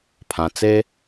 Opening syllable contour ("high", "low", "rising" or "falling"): low